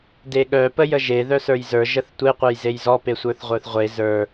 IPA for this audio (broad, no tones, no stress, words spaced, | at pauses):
deɠœ pəjəʒe ðœsə˞jzə˞ ʒəθtʷe qʷœjzejzɔ pesʷə˞θʁʷə˞θʁʷe zə˞